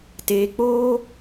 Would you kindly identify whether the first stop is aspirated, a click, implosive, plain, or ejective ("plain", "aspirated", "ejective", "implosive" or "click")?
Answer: plain